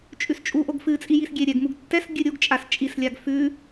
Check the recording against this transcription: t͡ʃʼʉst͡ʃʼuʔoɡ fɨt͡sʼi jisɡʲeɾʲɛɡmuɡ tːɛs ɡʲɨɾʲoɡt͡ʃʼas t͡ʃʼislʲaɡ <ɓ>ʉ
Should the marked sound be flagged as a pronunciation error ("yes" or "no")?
yes